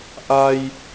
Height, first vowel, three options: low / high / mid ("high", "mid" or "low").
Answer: low